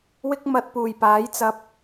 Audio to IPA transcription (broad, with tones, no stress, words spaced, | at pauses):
wɪ˥k̚mɐ˧t̚puː˨˩j paː˨˥jt͡sɐ˧p̚